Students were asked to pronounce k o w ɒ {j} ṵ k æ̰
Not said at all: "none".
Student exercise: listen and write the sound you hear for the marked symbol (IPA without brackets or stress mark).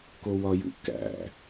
j